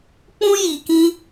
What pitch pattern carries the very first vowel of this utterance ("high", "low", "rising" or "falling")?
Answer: high